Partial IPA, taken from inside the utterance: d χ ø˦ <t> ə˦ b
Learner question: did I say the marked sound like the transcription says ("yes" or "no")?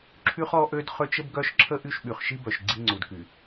no